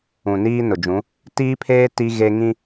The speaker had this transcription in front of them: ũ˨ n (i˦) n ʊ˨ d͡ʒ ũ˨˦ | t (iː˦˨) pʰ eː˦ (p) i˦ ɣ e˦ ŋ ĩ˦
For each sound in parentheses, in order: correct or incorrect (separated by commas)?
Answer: incorrect, incorrect, incorrect